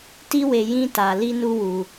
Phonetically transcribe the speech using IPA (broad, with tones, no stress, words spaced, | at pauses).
ti˦we˧ jĩ˦ta˧ li˦nu˦wu˧